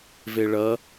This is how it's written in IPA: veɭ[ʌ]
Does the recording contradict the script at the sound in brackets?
no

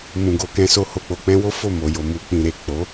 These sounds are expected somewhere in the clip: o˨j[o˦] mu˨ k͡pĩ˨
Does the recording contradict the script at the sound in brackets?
yes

